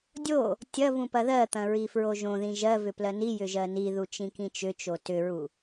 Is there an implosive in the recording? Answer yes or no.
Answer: no